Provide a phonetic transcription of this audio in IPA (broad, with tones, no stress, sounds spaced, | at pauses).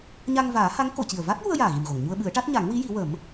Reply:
ɲ a˧ ŋ v aː˨˩˦ h a˧˥ ŋ k o˨˩˨ c i˨˩ ə̯ v a˦˥ t̚ j u˧ ə̯ j aː˨˩ ɣ i˨˩ m ɣ o˨˩˨ ŋ ɲ u˧ ə̯ ɓ ɨ˨˩˦ ə̯ ʈ a˦˥ t̚ ɲ a˨˩˦ ŋ w i˧˥ j i˨˩˦ w ə˨˩˦ m